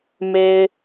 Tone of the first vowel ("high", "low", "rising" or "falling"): low